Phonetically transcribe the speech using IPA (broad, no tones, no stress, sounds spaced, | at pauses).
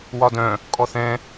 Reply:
w ɒ d œ̃ | kʼ ɔ θ ɛ̃